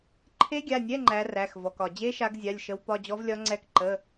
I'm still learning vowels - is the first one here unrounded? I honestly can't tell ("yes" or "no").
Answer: yes